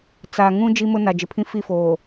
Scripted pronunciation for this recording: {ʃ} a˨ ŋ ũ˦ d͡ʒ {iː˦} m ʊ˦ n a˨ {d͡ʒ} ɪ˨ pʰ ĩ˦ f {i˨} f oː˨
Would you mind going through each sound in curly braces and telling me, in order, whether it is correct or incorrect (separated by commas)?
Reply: incorrect, incorrect, correct, incorrect